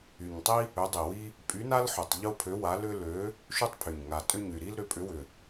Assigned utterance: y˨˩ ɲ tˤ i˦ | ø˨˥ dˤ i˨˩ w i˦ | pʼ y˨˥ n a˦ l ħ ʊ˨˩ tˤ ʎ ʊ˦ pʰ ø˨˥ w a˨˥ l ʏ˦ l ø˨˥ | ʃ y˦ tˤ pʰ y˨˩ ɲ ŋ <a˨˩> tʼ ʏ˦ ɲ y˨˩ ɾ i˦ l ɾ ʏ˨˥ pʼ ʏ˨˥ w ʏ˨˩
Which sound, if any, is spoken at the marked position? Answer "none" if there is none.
a˨˩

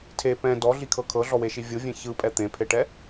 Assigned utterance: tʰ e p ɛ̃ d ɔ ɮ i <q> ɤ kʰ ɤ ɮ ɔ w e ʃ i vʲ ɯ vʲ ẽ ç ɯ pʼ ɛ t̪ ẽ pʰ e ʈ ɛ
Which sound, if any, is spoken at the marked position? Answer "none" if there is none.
kʰ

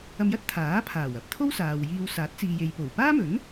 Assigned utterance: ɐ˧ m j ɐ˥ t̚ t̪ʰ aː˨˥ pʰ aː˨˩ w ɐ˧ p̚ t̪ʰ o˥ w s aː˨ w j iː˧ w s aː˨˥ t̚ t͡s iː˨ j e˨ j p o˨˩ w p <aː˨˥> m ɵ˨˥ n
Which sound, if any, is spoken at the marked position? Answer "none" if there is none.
aː˥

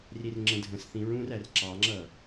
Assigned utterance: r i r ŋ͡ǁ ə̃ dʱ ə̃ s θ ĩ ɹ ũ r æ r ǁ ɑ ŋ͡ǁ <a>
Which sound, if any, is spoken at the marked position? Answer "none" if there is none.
ʌ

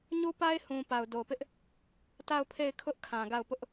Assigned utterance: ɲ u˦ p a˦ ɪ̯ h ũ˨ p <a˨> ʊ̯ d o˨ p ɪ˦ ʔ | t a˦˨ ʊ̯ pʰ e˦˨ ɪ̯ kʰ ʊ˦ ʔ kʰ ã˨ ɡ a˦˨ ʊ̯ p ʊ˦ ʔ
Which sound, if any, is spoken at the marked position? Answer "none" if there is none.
a˨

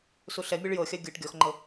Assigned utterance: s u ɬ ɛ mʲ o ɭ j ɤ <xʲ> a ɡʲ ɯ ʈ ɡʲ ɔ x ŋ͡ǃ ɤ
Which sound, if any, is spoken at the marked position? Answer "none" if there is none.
xʲ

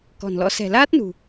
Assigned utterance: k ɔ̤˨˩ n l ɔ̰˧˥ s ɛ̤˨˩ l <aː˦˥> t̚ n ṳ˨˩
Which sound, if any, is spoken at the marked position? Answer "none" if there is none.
aː˦˥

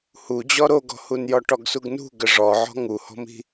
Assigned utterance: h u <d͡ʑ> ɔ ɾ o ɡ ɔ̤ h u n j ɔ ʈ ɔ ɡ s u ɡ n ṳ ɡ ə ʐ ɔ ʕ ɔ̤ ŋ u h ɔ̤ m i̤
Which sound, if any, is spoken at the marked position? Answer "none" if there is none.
d͡ʑ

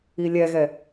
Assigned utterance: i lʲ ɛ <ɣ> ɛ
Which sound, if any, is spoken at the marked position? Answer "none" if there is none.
ɣ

